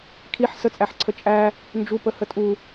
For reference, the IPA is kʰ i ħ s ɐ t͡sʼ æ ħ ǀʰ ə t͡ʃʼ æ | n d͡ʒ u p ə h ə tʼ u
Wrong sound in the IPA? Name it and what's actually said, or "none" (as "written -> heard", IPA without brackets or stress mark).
ɐ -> ə